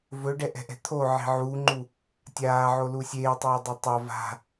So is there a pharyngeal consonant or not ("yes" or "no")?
yes